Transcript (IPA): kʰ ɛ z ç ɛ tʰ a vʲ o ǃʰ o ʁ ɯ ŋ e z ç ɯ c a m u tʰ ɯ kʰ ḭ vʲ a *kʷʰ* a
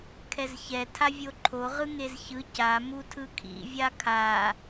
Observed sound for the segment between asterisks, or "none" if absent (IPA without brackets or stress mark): kʰ